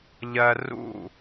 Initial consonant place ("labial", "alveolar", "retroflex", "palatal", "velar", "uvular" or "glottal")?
palatal